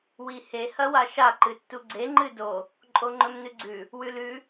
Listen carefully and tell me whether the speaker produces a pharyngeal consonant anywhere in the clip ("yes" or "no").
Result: no